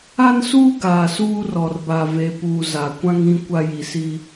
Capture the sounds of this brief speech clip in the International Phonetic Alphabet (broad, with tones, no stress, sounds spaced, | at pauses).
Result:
a˦ n s uː˦ ɡ aː˨ s uː˦ r ɔ˨ r b a˨ v e˨ p uː˨ z a˨ kʷ ã˦ ŋ ĩ˦ kʷ a˦ j i˨ s i˦